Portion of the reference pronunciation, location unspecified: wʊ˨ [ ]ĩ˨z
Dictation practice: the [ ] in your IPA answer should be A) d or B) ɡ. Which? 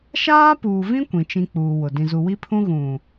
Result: A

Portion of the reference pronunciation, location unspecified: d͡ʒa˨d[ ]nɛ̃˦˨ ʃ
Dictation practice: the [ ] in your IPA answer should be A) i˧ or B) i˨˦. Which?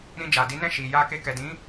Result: B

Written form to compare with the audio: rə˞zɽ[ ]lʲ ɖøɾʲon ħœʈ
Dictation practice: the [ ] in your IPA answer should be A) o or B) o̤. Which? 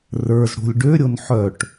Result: B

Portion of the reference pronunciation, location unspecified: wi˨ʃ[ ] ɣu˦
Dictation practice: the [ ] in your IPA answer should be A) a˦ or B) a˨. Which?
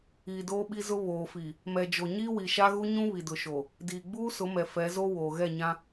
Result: A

